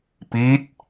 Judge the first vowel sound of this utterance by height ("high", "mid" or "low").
high